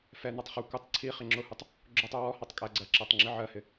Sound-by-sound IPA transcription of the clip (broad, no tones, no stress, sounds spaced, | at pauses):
f ɛ n ɒ tˤ χ u kʷ ɪ tˤ ǀʰ i χ ɪ ŋ͡ǁ ʊ h u tˤ | ɡ͡ǁ ʊ tˤ u w ɔ h ɑ tˤ kʼ æ ɡ͡ǀ ɜ ǁ æ tˤ ŋ͡ǁ i ʕ ɜ h ɪ